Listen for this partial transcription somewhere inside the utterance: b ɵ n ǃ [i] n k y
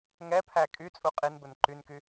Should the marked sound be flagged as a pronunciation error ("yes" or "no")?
yes